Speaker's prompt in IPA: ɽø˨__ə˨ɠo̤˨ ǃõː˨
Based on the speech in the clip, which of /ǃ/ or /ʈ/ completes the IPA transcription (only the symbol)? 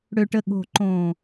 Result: ʈ